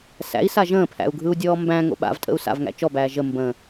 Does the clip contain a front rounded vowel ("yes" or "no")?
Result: no